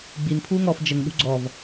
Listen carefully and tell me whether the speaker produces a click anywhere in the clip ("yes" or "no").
yes